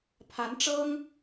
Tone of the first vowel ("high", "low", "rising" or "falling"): rising